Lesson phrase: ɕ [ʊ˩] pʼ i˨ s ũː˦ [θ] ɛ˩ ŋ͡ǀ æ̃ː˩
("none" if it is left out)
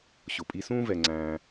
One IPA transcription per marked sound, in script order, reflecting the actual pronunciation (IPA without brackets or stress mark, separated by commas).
ʊ˩, v